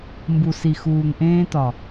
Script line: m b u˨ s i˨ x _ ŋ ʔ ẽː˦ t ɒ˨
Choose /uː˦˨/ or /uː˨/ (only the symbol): uː˨